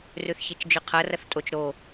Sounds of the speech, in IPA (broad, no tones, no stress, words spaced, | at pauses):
rʉθçet͡ʃd͡ʒʉqʰɐ rɐθtʼot͡ʃ ɾo